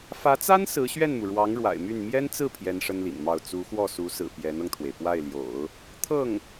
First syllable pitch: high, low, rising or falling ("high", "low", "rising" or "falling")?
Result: rising